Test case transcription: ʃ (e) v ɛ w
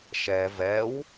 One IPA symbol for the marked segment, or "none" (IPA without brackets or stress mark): ɛ